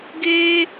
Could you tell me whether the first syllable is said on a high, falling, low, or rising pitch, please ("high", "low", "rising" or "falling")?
high